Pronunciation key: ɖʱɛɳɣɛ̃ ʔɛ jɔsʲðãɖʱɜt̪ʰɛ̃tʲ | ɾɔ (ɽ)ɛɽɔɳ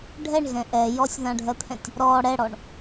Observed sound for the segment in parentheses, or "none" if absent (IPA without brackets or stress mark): ɽ